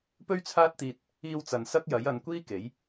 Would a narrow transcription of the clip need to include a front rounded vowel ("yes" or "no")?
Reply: no